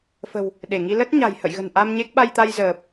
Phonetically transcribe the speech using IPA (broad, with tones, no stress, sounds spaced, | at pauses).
f ə̤˨˩ w | ɗ e˧˩ ŋ i˧ l ə˦˥ t̚ ɲ a̤˨˩ j h ə̰˧˨ j ɣ ə̤˨˩ n ʔ a˧ m ɲ e˦˥ k̚ ɓ a˧ j t̪ a˧ j z əː˨˩ p̚